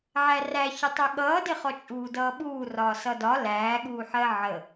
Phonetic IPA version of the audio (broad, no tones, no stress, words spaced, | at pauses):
ʕæræçətˤɛ ɠʌːdɪχɔ t͡ʃʼuːdʌːɓuːrɒː sʌdɒ læːɠuːħɜ ʕə